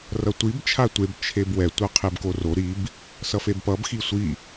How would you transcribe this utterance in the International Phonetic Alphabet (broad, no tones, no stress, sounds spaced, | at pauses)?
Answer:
r ʌ tʷ i b t͡ʃʰ a tʷ e b t͡ʃʰ e b w ɛ tʷ ʌ qʰ e b k o r o ɾ i b | s ʌ f e b p ʌ b x i sʷ i